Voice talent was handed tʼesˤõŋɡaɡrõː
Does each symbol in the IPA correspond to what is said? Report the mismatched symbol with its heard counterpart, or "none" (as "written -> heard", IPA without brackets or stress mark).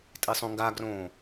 none